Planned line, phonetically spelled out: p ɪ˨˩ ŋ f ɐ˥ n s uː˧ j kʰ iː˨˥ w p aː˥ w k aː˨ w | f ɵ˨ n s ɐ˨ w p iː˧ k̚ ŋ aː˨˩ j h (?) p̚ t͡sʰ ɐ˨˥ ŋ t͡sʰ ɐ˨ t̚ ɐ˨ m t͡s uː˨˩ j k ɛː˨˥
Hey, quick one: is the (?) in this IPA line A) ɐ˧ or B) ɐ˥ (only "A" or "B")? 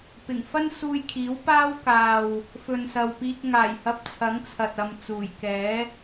A